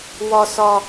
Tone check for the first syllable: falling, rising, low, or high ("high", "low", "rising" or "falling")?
low